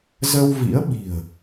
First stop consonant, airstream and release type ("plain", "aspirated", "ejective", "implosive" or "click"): implosive